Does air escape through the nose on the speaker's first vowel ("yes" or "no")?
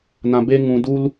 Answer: yes